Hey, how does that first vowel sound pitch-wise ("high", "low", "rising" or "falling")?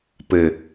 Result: low